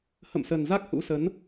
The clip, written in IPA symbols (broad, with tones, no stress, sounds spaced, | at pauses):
h ə̰˧˨ m s ə˨˩ n z a˦˥ k̚ h ṵ˧˥ s ə˨˦ n